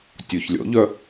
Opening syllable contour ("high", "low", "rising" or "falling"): low